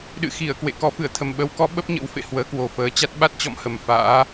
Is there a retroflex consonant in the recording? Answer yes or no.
no